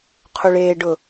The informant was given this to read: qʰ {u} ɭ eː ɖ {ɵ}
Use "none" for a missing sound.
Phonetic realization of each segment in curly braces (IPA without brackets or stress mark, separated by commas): u, ʊ